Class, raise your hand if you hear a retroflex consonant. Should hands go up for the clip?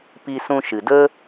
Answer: no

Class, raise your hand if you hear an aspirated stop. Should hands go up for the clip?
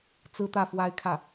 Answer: yes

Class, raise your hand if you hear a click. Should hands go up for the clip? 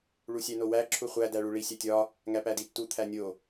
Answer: yes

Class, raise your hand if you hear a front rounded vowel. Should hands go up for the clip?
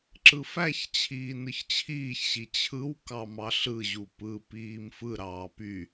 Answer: yes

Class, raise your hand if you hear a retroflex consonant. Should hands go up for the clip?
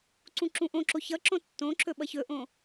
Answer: no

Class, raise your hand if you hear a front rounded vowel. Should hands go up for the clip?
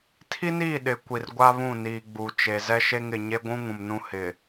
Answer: no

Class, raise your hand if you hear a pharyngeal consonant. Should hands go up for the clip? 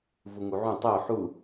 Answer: yes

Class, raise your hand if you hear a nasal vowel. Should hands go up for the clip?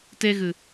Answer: no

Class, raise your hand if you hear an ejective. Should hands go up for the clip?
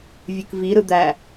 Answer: no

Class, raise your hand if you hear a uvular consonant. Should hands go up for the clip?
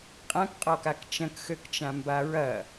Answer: yes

